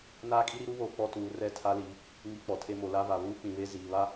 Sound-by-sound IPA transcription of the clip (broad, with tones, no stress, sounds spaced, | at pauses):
n aː˦ kʼ i˦ ɾ i˦ ɾ u˦ β oː˨ k͡p ɔ˦ t uː˨˦ r ɛ˦˨ tʰ a˦ l i˨˦ | ŋ i˦˨ k͡p ɔ˨ tʰ e˦ m o˨ l a˦ v a˨ β uː˦ k͡p ĩ˨ β e˦ z iː˨ β a˦